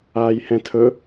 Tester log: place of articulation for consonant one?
palatal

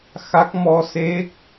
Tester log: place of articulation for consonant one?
velar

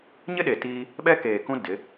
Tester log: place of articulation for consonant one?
palatal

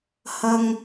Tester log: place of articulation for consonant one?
glottal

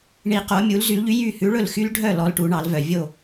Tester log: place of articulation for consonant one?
retroflex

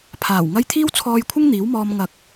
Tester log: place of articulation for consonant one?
labial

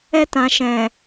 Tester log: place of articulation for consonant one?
alveolar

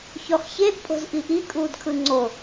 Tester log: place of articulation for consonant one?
palatal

